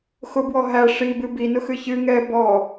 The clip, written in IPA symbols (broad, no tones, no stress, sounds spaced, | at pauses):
x ʊ b w ɔ ɦ æ ʂ i b ɨ b i n ʊ x ɨ ç ɨ ŋ ɛ b ɔ